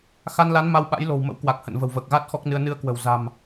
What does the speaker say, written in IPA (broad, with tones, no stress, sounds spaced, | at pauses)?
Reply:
x a˧ n l a˨˦ n m a˧ w ɓ a̰˧˥ j l o̤˨˩ w m ə̰˧˥ w k w a˨˩ k̚ h ə̰˧˨ n v ə̤˨˩ w v əː˨˩ k̚ ɣ a˦˥ t̚ x ɔ˦˥ k̚ n ɨ˧ ə̯ n ɨ˧ ə̯ k w ə̤˨˩ w z a̤˨˩ m